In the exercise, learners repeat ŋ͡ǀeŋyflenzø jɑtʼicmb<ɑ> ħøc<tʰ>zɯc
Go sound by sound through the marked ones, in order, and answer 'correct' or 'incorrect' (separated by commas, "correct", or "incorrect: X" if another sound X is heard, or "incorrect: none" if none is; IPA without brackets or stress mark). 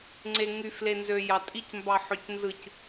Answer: correct, incorrect: n